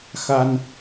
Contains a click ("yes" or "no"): no